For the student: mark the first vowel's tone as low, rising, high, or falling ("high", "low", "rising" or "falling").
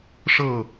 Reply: falling